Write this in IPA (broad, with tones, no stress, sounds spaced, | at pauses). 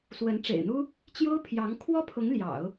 s w ə˧˥ n ʈ͡ʂ ḛ˨˩ ɪ̯ n̪ u˥ | t͡ɕ j o˥ ʊ̯ pʰ j ɑ˧˥ ŋ kʰ w ɔ˥ pʰ ʊ˧˥ ŋ l j ɑ̰˨˩˦ ʊ̯